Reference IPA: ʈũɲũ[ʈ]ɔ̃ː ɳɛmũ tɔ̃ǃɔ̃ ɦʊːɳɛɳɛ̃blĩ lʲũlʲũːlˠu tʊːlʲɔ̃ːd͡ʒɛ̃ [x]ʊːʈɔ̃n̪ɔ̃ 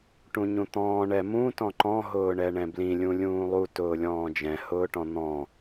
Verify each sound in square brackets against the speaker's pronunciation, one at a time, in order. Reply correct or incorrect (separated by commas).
incorrect, incorrect